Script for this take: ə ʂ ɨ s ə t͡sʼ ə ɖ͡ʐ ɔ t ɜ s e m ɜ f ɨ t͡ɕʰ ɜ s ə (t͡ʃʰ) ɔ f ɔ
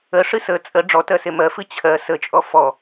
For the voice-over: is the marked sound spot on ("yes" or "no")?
no